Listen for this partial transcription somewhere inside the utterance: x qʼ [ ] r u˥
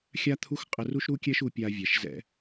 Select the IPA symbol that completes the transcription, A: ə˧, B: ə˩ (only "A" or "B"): A